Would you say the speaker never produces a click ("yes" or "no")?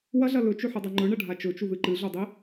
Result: no